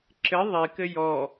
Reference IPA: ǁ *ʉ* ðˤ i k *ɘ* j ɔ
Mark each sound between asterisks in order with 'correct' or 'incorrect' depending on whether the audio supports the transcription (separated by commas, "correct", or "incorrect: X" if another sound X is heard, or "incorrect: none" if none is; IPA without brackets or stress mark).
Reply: incorrect: ɘ, correct